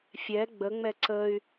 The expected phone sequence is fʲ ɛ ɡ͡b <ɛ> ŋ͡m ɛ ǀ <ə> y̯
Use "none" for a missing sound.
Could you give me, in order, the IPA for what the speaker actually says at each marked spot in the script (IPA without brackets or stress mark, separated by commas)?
ə, ə